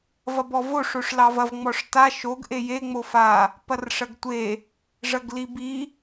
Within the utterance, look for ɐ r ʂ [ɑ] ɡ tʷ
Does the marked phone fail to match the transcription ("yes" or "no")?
yes